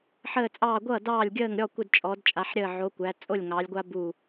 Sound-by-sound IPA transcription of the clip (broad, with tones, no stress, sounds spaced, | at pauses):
ħ əː˧˩ t͡sʼ ɑː˧˩ ɡʷ ʌː˥˩ d ɑː˥˩ lʲ ɡʲ əː˥˩ ŋ ɾʲ ɔ˥˩ kʷ ə˧˩ d t͡ʃʼ ɔ˩˧ d t͡ʃʼ a˩˧ ħ ɾʲ əː˧˩ ʕ o˩˧ kʷ æ˩˧ t͡sʼ o˥˩ lʲ ŋ ɑː˩˧ lʲ ɡʷ a˦ b u˧˩